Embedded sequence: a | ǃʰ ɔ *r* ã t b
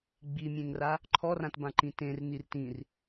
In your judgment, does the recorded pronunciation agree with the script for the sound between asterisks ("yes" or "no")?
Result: yes